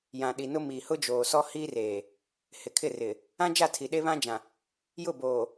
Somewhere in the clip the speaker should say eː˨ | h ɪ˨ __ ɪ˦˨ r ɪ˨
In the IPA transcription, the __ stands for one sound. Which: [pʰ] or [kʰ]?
kʰ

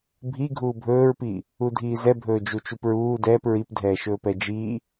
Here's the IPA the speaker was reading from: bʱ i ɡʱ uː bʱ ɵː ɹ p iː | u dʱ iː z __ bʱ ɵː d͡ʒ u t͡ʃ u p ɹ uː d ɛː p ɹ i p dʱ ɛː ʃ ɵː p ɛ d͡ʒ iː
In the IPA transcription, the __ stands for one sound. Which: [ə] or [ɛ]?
ɛ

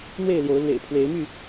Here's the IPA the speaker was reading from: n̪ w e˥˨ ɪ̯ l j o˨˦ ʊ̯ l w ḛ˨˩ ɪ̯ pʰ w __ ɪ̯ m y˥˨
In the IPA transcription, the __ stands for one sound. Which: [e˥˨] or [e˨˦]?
e˨˦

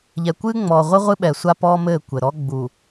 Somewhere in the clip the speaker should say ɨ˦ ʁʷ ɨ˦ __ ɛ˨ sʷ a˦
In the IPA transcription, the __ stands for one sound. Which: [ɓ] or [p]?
ɓ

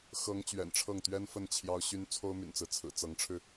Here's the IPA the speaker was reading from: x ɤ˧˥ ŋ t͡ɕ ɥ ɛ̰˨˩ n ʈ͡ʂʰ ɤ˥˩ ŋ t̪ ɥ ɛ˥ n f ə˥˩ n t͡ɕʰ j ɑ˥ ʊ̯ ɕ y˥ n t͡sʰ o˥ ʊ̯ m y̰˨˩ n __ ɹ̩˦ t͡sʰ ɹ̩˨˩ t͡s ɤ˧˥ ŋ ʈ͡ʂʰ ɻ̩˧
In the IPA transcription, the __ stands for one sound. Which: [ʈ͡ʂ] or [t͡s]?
t͡s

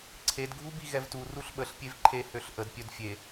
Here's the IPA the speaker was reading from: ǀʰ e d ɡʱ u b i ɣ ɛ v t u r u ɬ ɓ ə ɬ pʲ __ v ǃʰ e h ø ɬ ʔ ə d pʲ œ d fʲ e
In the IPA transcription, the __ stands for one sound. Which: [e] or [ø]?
e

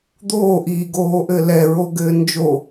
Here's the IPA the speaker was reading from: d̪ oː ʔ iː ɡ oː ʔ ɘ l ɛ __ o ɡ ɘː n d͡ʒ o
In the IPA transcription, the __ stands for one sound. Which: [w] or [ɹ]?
ɹ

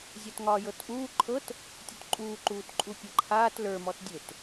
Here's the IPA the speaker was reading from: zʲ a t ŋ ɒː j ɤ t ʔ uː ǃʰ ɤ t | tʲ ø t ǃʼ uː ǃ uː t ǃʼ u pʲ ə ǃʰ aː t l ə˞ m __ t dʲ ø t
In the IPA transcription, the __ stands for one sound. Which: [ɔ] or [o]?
ɔ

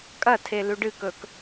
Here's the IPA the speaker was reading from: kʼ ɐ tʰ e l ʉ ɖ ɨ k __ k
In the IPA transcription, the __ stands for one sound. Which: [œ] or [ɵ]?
ɵ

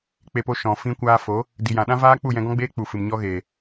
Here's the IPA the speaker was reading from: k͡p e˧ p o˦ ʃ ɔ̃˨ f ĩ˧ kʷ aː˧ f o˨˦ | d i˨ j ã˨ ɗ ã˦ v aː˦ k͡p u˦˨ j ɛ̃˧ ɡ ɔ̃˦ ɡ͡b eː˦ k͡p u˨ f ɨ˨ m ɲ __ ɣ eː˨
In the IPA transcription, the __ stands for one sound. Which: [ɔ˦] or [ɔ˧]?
ɔ˦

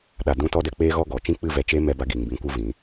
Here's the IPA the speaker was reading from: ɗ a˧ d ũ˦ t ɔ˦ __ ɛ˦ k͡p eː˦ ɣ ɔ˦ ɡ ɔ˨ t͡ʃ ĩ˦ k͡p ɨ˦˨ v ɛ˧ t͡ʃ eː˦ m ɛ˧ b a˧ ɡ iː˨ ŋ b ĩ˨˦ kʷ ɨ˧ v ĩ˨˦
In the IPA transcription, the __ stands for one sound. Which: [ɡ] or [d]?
d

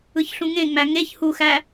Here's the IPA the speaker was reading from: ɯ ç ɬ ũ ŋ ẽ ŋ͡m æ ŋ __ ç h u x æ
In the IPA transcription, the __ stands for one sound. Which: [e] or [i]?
e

